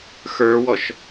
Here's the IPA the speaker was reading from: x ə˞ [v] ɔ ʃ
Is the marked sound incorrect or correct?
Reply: incorrect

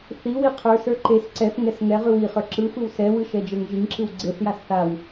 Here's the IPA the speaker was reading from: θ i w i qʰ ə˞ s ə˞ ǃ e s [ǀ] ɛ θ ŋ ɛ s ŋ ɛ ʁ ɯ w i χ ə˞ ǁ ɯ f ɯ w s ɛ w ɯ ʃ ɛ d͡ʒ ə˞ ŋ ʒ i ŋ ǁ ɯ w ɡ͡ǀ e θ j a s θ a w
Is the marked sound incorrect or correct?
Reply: correct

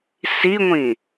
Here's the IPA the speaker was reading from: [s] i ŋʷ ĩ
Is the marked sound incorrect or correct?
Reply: correct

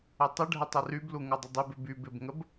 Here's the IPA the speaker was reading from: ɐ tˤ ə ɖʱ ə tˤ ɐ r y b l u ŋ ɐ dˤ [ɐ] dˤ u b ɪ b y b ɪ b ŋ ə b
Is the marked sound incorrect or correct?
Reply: correct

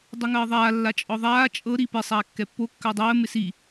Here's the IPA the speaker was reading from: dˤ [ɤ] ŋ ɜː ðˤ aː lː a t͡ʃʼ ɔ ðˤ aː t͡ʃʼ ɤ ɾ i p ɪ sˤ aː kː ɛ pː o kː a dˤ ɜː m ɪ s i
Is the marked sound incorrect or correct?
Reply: correct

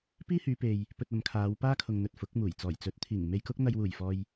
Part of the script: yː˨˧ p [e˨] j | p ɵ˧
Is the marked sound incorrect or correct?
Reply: correct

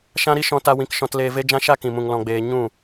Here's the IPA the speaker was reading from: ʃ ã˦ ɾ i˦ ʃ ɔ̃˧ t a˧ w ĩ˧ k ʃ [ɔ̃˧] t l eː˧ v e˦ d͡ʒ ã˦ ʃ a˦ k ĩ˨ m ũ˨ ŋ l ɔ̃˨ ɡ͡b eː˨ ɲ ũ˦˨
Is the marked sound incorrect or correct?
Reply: correct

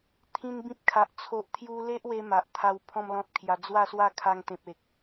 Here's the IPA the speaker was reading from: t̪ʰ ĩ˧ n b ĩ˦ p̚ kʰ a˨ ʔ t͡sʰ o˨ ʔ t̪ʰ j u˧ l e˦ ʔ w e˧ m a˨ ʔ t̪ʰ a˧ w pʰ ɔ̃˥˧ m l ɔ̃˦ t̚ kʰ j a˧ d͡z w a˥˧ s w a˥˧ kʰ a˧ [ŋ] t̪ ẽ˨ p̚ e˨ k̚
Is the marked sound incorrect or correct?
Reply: correct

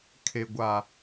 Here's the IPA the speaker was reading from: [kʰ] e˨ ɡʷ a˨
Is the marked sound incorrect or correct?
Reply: correct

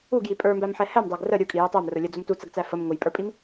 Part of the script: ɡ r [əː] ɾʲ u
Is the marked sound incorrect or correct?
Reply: incorrect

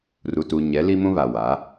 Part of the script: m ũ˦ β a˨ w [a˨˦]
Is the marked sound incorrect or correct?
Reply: correct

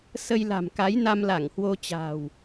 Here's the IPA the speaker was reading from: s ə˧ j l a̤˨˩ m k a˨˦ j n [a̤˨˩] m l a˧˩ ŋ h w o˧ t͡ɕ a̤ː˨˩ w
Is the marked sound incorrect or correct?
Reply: incorrect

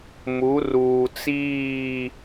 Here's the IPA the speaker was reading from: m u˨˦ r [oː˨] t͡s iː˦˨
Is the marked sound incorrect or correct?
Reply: incorrect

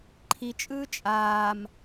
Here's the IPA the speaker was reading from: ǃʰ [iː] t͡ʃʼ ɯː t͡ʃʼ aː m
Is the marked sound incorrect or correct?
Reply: incorrect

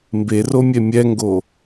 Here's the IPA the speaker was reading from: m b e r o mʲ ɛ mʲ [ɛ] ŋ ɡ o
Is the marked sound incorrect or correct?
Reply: correct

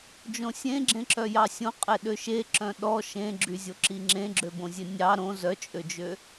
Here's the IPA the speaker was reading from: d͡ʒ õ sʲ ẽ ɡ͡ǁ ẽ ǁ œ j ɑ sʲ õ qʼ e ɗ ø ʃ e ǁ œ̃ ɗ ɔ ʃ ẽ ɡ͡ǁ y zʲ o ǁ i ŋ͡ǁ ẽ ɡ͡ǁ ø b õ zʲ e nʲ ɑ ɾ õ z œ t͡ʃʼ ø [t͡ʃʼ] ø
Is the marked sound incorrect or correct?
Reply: incorrect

